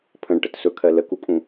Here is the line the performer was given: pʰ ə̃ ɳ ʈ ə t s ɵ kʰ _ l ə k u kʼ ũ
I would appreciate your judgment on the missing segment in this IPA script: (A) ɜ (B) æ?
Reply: A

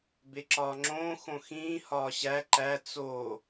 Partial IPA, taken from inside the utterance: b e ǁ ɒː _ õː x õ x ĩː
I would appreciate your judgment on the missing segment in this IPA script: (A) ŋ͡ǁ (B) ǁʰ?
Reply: A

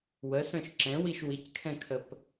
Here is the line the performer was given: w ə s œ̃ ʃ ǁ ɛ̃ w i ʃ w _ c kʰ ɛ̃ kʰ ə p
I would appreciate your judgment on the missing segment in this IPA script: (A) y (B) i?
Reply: B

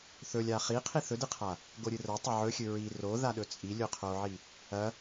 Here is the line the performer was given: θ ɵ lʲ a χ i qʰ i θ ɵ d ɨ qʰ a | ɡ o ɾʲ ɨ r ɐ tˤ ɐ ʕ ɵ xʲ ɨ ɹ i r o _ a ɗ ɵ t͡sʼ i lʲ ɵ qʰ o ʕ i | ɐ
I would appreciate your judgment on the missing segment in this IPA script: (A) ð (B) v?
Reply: A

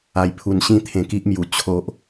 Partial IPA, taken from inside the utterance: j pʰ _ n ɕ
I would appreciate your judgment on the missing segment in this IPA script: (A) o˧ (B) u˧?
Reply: B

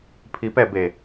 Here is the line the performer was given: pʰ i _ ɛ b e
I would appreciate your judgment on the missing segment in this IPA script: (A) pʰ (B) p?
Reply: B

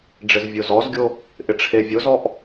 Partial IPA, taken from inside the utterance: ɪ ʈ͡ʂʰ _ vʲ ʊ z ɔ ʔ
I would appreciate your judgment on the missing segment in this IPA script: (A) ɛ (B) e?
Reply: B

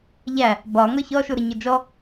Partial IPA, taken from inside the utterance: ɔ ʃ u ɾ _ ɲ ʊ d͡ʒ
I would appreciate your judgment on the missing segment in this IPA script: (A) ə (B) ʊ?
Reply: A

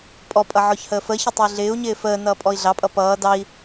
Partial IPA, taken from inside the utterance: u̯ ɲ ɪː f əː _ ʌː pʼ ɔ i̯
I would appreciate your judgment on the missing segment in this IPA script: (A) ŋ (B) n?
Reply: B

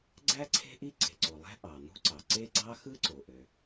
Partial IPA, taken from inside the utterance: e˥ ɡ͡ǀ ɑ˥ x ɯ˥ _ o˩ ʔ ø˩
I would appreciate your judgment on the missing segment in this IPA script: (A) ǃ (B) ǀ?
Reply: B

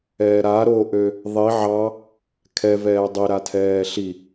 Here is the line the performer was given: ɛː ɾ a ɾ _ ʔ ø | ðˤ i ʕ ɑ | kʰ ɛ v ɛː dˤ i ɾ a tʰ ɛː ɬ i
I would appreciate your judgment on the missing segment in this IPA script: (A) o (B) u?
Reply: A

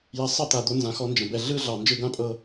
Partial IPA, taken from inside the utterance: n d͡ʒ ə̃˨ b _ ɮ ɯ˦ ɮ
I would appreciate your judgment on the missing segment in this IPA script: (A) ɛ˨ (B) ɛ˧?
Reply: A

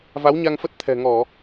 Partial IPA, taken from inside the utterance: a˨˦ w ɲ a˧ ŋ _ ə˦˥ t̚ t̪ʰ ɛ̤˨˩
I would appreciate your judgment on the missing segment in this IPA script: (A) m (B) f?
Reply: B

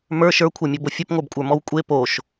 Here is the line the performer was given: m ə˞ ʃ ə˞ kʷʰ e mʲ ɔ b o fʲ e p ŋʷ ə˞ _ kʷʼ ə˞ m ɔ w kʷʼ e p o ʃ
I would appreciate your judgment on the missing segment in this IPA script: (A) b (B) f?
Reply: A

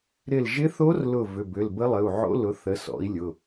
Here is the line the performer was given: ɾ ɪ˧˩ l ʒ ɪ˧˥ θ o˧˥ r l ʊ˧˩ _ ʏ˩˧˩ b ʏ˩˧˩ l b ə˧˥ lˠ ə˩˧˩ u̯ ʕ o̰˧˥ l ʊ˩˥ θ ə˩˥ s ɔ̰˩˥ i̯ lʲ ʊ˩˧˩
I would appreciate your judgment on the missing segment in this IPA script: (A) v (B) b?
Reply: A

